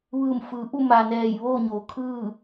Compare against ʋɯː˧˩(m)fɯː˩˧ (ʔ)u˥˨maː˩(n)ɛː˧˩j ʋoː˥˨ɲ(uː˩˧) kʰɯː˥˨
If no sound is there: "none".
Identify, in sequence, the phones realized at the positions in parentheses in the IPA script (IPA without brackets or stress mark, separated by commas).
m, ʔ, n, oː˩˧